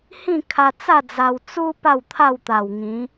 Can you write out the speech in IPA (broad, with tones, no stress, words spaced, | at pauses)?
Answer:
hĩ˥˧kʰa˧t͡sa˥˧ d͡za˧w t͡su˦ pa˥˧wt̪ʰa˥˧wt̪a˨˩wŋĩ˨˦